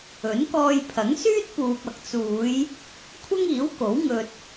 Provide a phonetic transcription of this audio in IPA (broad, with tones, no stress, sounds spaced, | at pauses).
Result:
ɵ˨˥ n k ɔː˧ j pʰ ɐ˨˥ ŋ s yː˥ t̚ p uː˨ p̚ ɐ˨ k̚ t͡s uː˨˧ j | kʷʰ ɐ˥ ŋ iː˨˥ w k o˨˥ w ŋ ɵ˧ t̚